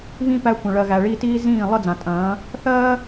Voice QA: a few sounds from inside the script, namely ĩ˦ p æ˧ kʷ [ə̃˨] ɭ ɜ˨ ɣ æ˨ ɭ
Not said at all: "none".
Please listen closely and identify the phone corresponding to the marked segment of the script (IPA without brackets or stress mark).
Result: ə̃˨